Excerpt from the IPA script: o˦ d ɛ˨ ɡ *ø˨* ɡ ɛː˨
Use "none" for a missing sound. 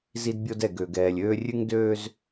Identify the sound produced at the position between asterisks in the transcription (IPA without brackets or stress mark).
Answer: ø˨